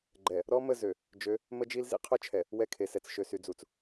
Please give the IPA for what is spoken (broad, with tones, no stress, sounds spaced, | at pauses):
ɡ͡ǃ ɛ˨ | ɾ ɔ˦ m ə˦˨ z ø˨ | d͡ʒ ø˨˦ | m ə˦ d͡ʒ i˦ l z ḭ˦ qʰ œ˦ t͡ʃʰ ɛ˨ | w ɛ˦˨ kʰ e˨ s ɛ˨ t͡s ʃ ø˨ s y˨ d͡z u˨ t͡s